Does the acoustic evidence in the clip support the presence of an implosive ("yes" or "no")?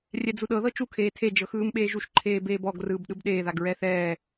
yes